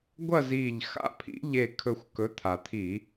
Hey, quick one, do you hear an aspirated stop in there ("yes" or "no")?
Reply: yes